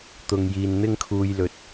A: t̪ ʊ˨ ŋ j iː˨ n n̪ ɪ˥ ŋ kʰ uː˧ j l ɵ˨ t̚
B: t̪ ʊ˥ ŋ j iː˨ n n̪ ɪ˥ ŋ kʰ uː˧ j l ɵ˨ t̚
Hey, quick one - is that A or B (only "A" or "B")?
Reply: A